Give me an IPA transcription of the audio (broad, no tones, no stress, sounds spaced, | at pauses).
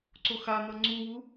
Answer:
ǀ o x a n̪ ʌ ŋ͡ǀ u w u